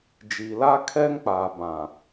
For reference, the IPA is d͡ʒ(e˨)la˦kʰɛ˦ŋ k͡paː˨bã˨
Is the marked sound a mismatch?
yes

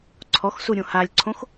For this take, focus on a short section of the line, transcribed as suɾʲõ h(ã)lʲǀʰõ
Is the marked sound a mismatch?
yes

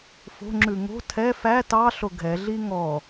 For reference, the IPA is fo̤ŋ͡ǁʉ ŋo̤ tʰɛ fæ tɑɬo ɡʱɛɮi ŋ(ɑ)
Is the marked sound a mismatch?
yes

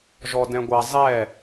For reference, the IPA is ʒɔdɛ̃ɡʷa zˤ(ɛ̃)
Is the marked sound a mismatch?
yes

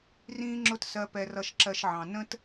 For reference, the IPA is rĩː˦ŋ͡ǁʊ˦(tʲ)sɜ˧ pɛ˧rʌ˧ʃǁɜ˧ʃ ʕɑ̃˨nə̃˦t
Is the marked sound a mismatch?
yes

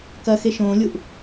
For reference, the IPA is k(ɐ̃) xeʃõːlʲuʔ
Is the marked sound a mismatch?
yes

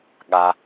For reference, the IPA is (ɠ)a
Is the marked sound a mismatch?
no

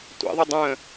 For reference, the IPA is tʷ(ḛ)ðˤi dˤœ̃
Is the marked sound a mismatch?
no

